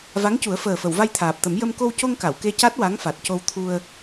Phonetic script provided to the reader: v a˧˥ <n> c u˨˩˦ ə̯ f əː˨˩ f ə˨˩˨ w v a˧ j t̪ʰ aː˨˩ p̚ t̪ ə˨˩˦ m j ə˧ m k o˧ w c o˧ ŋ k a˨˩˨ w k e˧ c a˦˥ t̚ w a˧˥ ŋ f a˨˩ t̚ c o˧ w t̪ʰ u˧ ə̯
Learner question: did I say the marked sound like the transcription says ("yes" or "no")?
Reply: no